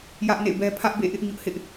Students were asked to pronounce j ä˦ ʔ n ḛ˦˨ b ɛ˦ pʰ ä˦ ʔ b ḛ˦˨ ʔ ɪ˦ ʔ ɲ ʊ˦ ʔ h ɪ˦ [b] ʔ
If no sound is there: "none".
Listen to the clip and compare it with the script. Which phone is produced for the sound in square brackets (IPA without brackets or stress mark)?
none